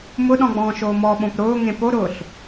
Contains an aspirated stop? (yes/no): no